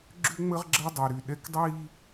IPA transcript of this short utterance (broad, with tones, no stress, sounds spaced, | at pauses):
ɡ͡ǁ ʏ˦ ŋ͡m ə˦ ʁ ɡ͡ǁ ɐ˦ dˤ y˨ ɾ y˨ ɗ ɛ˦ k dˤ iː˦